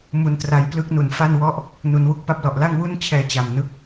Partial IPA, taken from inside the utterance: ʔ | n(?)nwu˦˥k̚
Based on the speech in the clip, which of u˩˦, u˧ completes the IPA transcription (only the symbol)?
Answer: u˩˦